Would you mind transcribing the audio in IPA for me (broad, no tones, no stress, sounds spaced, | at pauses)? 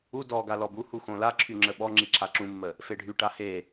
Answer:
u d ɔ ɡ a l ɔ b u h u x õ l a ǁʰ y ŋ͡ǁ ə ɓ ɔ ŋ͡ǁ i ǁʰ a ǁ ũ mː ə | f e ɖʱ y ʈ a h e